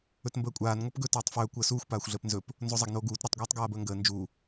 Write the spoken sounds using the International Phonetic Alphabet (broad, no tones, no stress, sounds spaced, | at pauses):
ɵ t m b əː kʷʼ aː n ŋʷ a p ɡ ɵ t oː tˤ f ɵː kʷ əː s uː xʷ p aː xʷ ɮ əː p n z ɵ p | n z o zˤ a ɡ n oː ɡ uː t ɾ ɵ tˤ ɡʷ aː tˤ ɡ aː b əː ŋ ɡ əː n d͡ʒ u